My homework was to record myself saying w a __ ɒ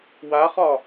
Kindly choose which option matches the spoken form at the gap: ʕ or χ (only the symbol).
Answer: χ